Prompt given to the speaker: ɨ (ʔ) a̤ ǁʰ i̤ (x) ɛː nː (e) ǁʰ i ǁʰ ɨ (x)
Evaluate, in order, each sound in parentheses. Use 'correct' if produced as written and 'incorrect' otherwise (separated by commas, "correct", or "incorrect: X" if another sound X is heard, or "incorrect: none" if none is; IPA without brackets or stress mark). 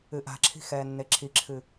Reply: correct, correct, correct, incorrect: none